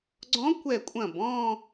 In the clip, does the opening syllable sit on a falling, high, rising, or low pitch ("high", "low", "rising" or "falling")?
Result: rising